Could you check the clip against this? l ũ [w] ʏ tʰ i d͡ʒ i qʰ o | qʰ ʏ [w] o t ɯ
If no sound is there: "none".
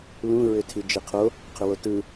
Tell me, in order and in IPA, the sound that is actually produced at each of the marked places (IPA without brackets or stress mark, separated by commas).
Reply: ɹ, w